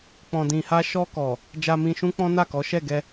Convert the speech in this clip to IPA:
k͡p ɔ̃˨ d ĩ˨ h a˧ ʃ ɔ˧ k ɔ˨ | d͡ʒ a˧ m ĩ˧ ʃ ũ˦ k͡p ɔ̃˦ n a˦˨ k ɔ˨˦ ʃ ɛ˦˨ ɡ ɛ˧

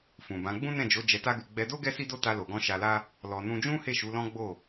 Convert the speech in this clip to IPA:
f ũ˨ b ã˨˦ ɡ͡b ũ˦ n ɛ̃˦˨ d͡ʒ o˨˦ d͡ʒ ɛ˧ t a˦ ɡ u˧ ɡ͡b ɛ˧ d o˦ ɡ ɛ˦ s i˦ d o˦ t a˧ l o˨ ɡ ɔ̃˧ ʃ a˧ l a˦ | l ɔ˧ n ũ˦ d͡ʒ ũ˦ h e˦˨ ʃ u˨˦ l ɔ̃˦ ɡ͡b o˦˨

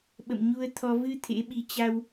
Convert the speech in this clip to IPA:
ɓ ə̰˧˨ m ɲ u˧ ə̯ t̪ʰ ɔ˧ v ɨ˧ t̪ʰ ḛ˧˥ ɓ i˧ t͡ɕ a˧ w

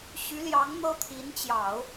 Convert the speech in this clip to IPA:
ɕ y˧˥ l j ɑ˧˥ ŋ n̪ ɤ˥ t̪ʰ i˧˥ n t͡ɕ j ɑ˨˩˦ ʊ̯

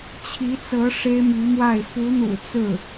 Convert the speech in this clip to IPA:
t͡ɕʰ i˧˥ t͡s ɤ˧˥ ʂ e˥ ɪ̯ m y˧˥ m w a˥˩ ɪ̯ f u˧˥ n̪ ṵ˨˩ t͡s ɹ̩˥˩

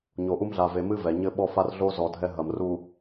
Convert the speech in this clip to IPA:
ɲ o˨ ʔ u˦ m ɮ a˨ v e˨ m ɨ˦ v ɛ˨ ɲ ɘ˦ ɓ ɔ˦ f a˦ r ɮ o˦ z ɔ˨ dʱ ɛ˦ ɦ ɐ˨ m r u˨

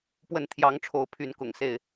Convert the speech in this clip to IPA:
p w ə˥˨ n t̪ʰ j ɑ˨˦ ŋ ʈ͡ʂʰ o˨˦ ʊ̯ pʰ y˨˦ n k ʊ̰˨˩ ŋ s e˥˨ ɪ̯

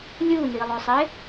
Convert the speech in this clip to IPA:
lʲ u n i lˠ o sˤ e

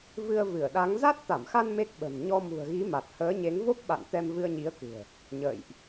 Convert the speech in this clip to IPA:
v ɨ˧ ə̯ v ɨ˧˩ ə̯ ɗ a˨˦ ŋ z a˦˥ t̚ t̪ a˧˩ m x a˧ n m e˦˥ k̚ ɓ ə̤˨˩ n ɲ ɔ˧ m ṳ˨˩ ə̯ ɣ i˨˦ m a˨˩ t̚ h əː˨˦ ɲ e˨˦ ŋ v o˦˥ p̚ ɓ a̰˧˨ n t̪ ɛ˧ m v ɨ˧ ə̯ ɲ i˨˦ ə̯ k ɨ̤˨˩ ə̯ | ɲ ə̰ː˧˨ j ʔ

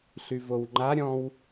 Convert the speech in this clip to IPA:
ɬ y v o w ŋ͡ǃ a ɾʲ ɔ̃ w

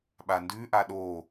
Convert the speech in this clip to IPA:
ɓ a n d ʉ ʔ a ɗ o

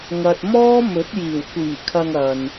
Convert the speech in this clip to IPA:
ŋ ɐ˧ t̚ m ɔː˥ m ɵ˨˥ t̚ j iː˨˩ w kʷ iː˨˩ kʰ ɐ˨ ŋ ɐ˨ n

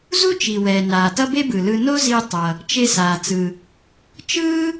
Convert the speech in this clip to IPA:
z u˥ t͡ʃ i˩ w ɛː˩ n aː˩ t ʌ˥ b e˥ b ɯ˩ l ɯ˧ n o˥ z i˧ tˤ ʌ˩ | t͡ʃ e˧ s aː˩ t͡s ɯ˩ | t͡ʃ ɯː˥

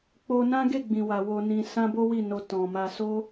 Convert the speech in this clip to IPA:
k͡p o˧ n ã˦ ɡ e˦˨ ɡ͡b ĩ˨ w a˨ w o˧ n ĩ˧ s ã˦ b o˦ w i˦˨ n o˧ t ɔ̃˨ m a˧ s o˦

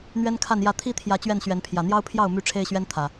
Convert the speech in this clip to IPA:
n̪ ɥ ɛ˦ n kʰ a˥˨ n j ä˥˨ t̪ʰ i˦ t̪ʰ j ä˨˦ t͡ɕ ɥ ɛ˥˨ n ɕ ɥ ɛ˨˦ n pʰ j ä˨˩ n̪ j ɑ˦ ʊ̯ pʰ j ɑ˥˨ ʊ̯ m y˥˨ ʈ͡ʂʰ e˦ ɪ̯ ɕ ɥ ɛ˦ n t̪ʰ ä˨˩

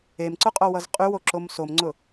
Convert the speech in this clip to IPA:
e m ǀ ʊ qʼ o w ʌ z qʼ y w o ǁ o m s o m ŋ͡ǀ ʊ

